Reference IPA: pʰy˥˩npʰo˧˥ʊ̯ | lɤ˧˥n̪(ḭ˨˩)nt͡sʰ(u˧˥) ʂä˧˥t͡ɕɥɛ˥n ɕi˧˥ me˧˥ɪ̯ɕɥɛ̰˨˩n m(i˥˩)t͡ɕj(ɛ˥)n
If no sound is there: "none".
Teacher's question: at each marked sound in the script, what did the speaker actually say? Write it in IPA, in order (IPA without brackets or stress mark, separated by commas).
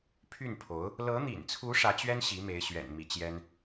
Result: ḭ˨˩, u˧˥, i˧˥, ɛ˥